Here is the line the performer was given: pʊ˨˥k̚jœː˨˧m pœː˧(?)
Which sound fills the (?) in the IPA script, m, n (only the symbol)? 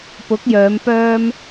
m